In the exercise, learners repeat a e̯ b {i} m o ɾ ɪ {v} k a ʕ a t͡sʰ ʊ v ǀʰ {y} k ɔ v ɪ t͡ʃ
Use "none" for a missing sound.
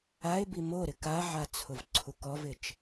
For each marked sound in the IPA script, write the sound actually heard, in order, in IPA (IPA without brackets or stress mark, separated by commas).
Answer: i, none, u